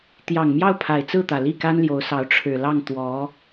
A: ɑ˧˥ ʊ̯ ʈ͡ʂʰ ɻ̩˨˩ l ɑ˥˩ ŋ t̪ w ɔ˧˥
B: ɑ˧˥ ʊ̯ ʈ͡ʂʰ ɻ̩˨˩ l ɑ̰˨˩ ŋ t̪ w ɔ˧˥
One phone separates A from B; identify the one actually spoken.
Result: A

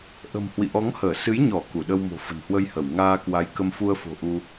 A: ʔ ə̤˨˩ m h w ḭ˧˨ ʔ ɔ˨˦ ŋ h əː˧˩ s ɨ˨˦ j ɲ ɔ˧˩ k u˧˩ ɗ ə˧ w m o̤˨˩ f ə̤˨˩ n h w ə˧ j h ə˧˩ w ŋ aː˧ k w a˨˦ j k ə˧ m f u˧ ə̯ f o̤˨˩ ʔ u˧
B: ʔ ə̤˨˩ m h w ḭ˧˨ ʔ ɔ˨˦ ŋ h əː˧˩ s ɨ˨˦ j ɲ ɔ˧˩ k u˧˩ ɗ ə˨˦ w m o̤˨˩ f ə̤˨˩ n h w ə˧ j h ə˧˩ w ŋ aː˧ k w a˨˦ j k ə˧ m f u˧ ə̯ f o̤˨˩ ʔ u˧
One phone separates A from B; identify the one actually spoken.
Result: A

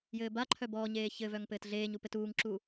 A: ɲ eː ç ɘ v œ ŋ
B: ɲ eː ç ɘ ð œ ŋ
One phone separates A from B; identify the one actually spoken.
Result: A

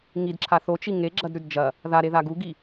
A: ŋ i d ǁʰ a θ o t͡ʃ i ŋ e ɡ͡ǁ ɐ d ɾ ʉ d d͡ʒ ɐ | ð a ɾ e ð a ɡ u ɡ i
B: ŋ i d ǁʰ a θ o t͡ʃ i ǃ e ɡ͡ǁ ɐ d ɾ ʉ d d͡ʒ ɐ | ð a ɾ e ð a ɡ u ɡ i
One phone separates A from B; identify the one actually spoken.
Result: A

